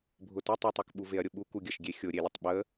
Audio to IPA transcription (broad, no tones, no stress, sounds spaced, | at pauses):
bʱ ʊ t ʊ tˤ ʊ tˤ u k ɓ u v e ɐ̯ ɾʲ ʊ ɓ u k u ɡʲ ə ʃ ɡʲ e xʲ ʊ ɾʲ e lʲ ə tˤ ɓ ə